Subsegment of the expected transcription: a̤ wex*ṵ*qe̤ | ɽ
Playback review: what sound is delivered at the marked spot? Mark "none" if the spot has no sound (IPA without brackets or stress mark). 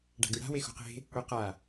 ṳ